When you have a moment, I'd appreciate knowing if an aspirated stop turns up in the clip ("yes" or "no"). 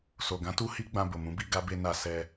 no